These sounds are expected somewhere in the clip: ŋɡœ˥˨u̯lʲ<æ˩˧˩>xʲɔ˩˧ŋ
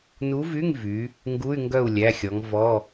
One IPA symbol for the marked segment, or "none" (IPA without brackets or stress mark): æ˩˧˩